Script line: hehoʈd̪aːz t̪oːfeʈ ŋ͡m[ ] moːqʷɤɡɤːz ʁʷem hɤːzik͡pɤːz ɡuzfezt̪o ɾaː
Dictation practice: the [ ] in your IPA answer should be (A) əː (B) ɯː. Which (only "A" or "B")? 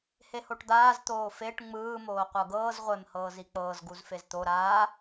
B